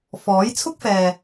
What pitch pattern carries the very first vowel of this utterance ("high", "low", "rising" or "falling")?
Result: rising